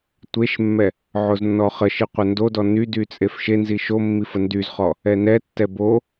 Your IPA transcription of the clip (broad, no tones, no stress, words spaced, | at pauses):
tʷeʃmːɛ | ʕoznːɔχəʃi qʷəndodɔ nydy t͡sʼefʃenzi ʃo mːifəndyzχɔ | ɛnɛtːɛ bo